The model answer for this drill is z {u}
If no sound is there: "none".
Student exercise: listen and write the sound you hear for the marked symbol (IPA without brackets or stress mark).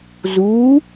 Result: u